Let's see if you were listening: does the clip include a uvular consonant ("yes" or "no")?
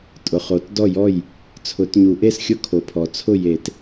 yes